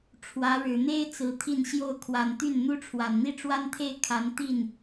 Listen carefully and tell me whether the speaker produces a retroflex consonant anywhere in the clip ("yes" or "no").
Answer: yes